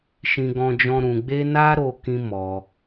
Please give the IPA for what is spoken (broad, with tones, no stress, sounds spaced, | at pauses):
ʃ ĩ˦ ɡ ɔ̃˦ d͡ʒ ɔ̃˦ ɾ ũ˧ ɡ͡b e˦ n a˦ ɾ o˦ k ĩ˦ m ɔ˧